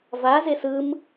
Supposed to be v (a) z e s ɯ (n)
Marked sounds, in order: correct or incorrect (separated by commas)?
correct, incorrect